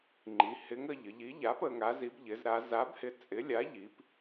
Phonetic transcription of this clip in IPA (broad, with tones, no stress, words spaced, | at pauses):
ŋ͡ǃi˩˧hɪ˨˥ŋə˩˧ ʎə˩˧ʎi˨˥ʎa˨˥p ə˩˧ŋa˨˥zi˨˥b ʎɪ˩˧zɾa˩˧za˨˥bhɪ˨˥ t͡sʼɪ˨˥ lʲa˨˥ʎi˩˧p